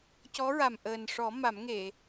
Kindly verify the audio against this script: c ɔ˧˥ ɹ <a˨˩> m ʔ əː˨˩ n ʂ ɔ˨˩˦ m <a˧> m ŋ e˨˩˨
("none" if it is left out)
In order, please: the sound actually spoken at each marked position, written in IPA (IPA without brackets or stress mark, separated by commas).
a˨˩, a˨˩˦